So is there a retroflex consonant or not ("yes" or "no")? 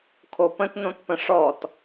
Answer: yes